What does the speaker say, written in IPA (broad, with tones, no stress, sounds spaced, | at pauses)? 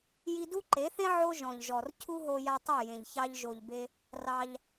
j i˧ d u˦ ǃ e˨˦ θ ẽ˦ ʕ o˦ ʒ ɔ̃˨ ʎ ʒ ɔ˨ r cʰ u˦ ɦ o˧ j a˧ tˤ i˦˨ j ẽ˨ ʎ ç ɑ˧ ʎ ʒ o˨ ʎ b e˧ | r ɑ˧ ʎ